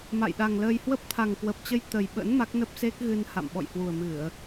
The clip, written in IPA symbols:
m a̰˧˨ j ɗ a˨˩ ŋ l əː˧ j h w ə˦˥ p̚ t̪ʰ a˨˩ ŋ k w ə˨˩ p̚ t͡ɕ ə˧ j t̪ ə˨˩ j ɓ ə̰˧˥ n m a˦˥ k̚ n ə˦˥ p̚ s e˦˥ k̚ ɣ ɨ˧ n h a̰˧˨ m ɓ ɔ̰˧˨ j h w u˨˩ ə̯ m ɨ˧˩˨ ə̯

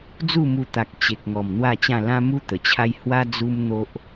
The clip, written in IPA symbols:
d͡z u˥˧ m u˧ t̪ a˨ k̚ t͡ɕ e˨ k̚ ŋ ɔ˨˩ m n̪ w a˥˧ t͡ɕ ã˥˧ l ã˦ m u˦ t̪ ə˨˩ t͡ɕʰ a˦ j h w a˦ d͡z u˦ m n̪ o˦ ʔ

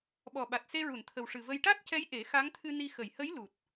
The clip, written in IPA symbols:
ɓ ɔ˨˩ ɓ a˨˩ t̚ s e˧ ɹ u˨˩˨ n t̪ʰ ə˨˩ w ʂ ɨ˨˩ v ə˧ j ʈ a˦˥ t̚ c ɛ˧˥ j ʔ e˨˩˦ x a˧˥ ŋ t̪ʰ ɨ˧ n i˧ x ə˨˩˨ j h ə˧˥ j l u˨˩ t̚

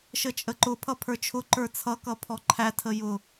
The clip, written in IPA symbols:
ʃ ə t͡ʃʼ ə ǃ ʊ pʰ ʌ pʰ ə˞ t͡ʃʰ ʊ ǃ ə˞ t͡sʰ ʌ k ʌ pʰ ɔ ǃʰ æ tʰ ə j ʊ

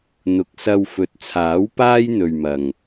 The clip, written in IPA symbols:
n̪ ʊ˨ k̚ s ɐ˧ w f ɵ˨ t̚ t͡sʰ aː˨˥ w p aː˥ j n̪ ɵ˨ ɥ m ɐ˨ ŋ

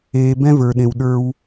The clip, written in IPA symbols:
eː˨ b ɛ̃˦ v ə˞˨ ɗ ẽ˨ w ɗ ə˞˦ w

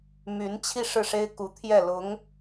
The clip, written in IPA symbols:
m y˧˥ n t͡ɕʰ i˥˧ ʂ ɻ̩˥˩ ʂ e˥ ɪ̯ k u˧˥ t̪ʰ j ɛ˥˩ l ʊ˧˥ ŋ

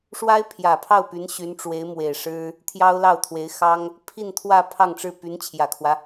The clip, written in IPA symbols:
ʂ w a˥ ɪ̯ pʰ j ä˨˩ pʰ ɑ˥˩ ʊ̯ p y˧˥ n ɕ y˧˥ n ʈ͡ʂ w e˧˥ ɪ̯ m w e˨˩ ɪ̯ ʂ ɻ̩˥ | t̪ʰ j ɑ˥ ʊ̯ l ɑ˥˩ ʊ̯ t̪ʰ w e˧˥ ɪ̯ x ɑ˥ ŋ | pʰ i˥˧ n t̪ʰ w ä˥˧ pʰ ɑ˥˧ ŋ ʈ͡ʂ ɻ̩˥˩ p y˧˥ n t͡ɕʰ j ä˨˩ kʰ w ä˦

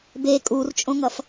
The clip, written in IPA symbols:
b e kʼ u r t͡ʃʼ õ ŋ ʌ f

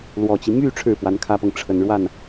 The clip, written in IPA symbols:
l w ɔ˨˩ t͡ɕ i˦ m y˥˧ ʈ͡ʂʰ ɻ̩˥˩ p w a˧˥ n kʰ ä˥ p ɤ˨ ŋ ʈ͡ʂʰ ə˨˩ n ɻ w a˥˩ n

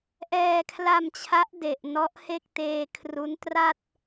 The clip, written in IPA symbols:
ʔ ɛː˧ kʰ l a˧ m t͡ɕʰ a˦˥ ʔ d e˨˩ ʔ n ɔ˦˥ ʔ h e˥˩ k̚ t eː˧ kʰ r u˦˥ n t r a˥˩ t̚

